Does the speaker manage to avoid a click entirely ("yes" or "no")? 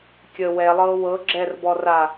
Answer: no